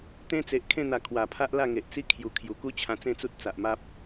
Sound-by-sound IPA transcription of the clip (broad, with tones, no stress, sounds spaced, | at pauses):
t̪ ẽ˦ t͡s e˨ ʔ kʰ ẽ˥˧ n̪ a˨˩ kʰ w a˨˩ pʰ a˦ ʔ l a˥˧ ŋ e˨ ʔ t͡s i˦ kʰ j u˨˩ kʰ j u˨˩ k u˦ t͡ɕʰ ã˧ t͡s ẽ˥˧ t͡s u˦ t̚ t͡s a˨ ʔ m a˦ p̚